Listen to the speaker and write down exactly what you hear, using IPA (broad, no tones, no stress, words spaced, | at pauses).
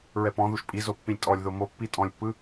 ɹɛpɔ̃ðuʃ pʼizo pːĩlʲtʼɔlʲðo mopːi tʼɔ̃lʲpːɯ